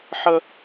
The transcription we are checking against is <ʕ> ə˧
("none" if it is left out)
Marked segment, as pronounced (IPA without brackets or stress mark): ħ